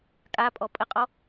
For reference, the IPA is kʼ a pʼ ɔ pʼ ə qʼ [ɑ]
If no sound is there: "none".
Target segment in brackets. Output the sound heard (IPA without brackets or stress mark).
ɔ